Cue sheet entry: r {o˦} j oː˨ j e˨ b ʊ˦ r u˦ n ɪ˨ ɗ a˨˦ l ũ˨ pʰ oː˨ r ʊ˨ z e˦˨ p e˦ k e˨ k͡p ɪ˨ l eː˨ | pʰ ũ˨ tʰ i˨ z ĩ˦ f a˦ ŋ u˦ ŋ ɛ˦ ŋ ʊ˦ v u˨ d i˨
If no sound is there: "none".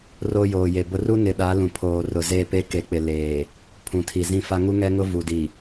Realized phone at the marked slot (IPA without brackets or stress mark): o˦